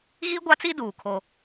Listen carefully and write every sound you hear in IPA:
ɣ i˦ ɡʷ a˦ t͡s i˦ d uː˨ kʰ o˦

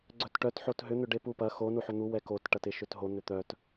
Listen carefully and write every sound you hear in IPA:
ɡ͡ǀ œ t ʈ œ t ħ o t ɦ ʏ n̪ ʏ ɖ e p u p ɐ x o n u ħ ʏ n̪ u w ɛ k o t ʈ ɐ t ɪ ʃ ʏ t ɦ o n̪ ʏ t̪ œ t

